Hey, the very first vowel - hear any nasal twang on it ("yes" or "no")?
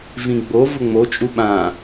yes